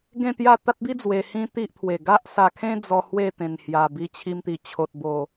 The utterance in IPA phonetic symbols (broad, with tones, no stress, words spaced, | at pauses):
ɡẽ˥˧t̪ja˥˧ t̪a˦t̚bi˦ d͡zwe˧hĩ˦t̪i˦ʔt̪ʰwe˨˩ ɡa˦ʔsa˧kʰẽ˦ d͡zɔ˧ hwe˥˧t̪ẽ˨˩nhja˨˩bi˧ t͡ɕʰi˧mt̪i˨˩ t͡ɕʰo˨t̚bo˨˩